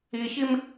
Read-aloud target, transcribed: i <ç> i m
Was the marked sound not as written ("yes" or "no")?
no